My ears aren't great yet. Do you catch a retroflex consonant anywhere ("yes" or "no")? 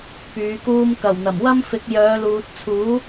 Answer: no